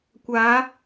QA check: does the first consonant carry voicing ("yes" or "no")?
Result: no